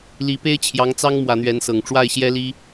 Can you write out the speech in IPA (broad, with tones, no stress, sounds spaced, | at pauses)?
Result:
l i˧˥ p e˥ ɪ̯ t͡ɕʰ j ɑ˧˥ ŋ t͡s ɑ˥ ŋ m w ä˧˥ n̪ ɥ ɛ˧˥ n s ɤ˨˩ ŋ ʈ͡ʂ w a˥˩ ɪ̯ ɕ j ɛ˥ l i˥